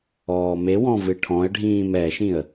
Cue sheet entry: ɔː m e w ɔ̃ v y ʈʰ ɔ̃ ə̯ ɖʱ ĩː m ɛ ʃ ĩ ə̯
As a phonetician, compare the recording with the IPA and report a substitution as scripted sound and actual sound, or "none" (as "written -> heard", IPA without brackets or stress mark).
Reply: y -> ɨ